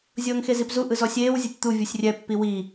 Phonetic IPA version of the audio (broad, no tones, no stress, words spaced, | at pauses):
zʲɤːŋxezipzu ʔɯzɔsʲeːw zʲotʲt̪u vʲusʲrʲɛ pːiwi